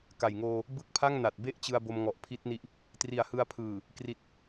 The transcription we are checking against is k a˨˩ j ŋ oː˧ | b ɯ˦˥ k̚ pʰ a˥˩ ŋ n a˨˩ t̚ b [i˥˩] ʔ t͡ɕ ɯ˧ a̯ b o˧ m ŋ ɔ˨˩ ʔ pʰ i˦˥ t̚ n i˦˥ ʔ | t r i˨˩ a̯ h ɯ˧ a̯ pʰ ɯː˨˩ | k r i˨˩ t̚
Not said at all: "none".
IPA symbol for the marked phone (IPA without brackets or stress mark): e˥˩